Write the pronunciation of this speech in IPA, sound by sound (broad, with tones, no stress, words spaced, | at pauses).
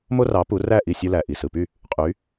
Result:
mo˥rɑ˩˥ pu˩˥ræ˥˩ʔi˥˩ sʲu˧læ˩ ʔi˩sɯ˩py˥˩ | qʼy˩˥